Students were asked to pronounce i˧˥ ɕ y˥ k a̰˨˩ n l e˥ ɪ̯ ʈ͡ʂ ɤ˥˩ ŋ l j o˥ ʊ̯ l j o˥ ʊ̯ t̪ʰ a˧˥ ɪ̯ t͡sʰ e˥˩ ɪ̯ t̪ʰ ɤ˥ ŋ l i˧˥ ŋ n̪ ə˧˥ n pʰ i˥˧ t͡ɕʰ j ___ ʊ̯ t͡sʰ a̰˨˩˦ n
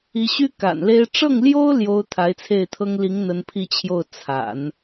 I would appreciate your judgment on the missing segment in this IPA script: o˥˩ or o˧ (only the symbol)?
o˥˩